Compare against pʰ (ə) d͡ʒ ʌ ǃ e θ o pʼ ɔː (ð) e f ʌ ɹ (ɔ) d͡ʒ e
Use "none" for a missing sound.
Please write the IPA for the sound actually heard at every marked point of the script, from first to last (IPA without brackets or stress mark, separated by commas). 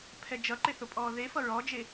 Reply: ɛ, ð, ɔ